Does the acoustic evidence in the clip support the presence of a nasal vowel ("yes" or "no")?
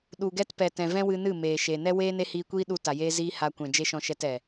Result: yes